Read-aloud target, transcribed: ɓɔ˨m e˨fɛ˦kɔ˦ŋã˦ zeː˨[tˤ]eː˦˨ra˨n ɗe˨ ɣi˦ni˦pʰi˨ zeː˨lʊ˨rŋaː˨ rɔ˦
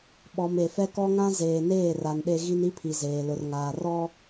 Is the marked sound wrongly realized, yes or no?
yes